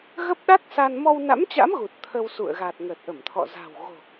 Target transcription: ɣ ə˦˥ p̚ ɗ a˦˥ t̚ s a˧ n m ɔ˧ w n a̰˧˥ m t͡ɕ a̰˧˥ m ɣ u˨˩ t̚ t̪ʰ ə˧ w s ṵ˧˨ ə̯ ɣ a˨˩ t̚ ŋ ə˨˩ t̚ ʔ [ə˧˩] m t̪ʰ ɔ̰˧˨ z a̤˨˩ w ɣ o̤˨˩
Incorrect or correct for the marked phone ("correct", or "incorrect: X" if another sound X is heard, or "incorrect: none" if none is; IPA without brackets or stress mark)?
correct